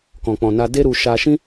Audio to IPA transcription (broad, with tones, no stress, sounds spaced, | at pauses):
k ɔ̃˨ k͡p ɔ̃˨ n a˧ d e˦ ɾ u˧ ʃ a˧ ʃ ĩ˦